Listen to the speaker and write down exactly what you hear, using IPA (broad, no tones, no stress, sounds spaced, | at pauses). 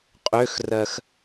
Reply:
qʼ ø x r ɜ x